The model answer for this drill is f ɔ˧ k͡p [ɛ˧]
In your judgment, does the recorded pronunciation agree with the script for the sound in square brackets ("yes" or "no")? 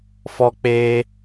no